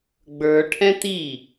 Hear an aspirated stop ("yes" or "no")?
yes